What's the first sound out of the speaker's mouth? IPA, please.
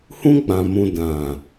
h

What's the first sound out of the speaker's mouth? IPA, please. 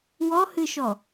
w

